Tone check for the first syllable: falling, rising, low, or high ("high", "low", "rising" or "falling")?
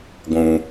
low